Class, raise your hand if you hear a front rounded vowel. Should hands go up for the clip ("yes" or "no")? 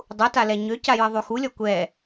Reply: yes